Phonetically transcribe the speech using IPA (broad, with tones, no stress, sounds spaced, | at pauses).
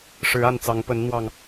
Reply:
ʂ ɻ̩˨˦ a˥˨ n t͡s ɑ˨˦ ŋ p ə˨˦ n n̪ w ɑ˨˩ ŋ